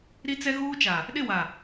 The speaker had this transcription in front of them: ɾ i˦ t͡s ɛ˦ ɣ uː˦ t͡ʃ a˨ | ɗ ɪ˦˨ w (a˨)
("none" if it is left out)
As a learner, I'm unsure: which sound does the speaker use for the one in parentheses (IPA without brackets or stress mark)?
a˨